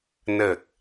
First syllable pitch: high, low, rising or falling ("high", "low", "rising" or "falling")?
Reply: low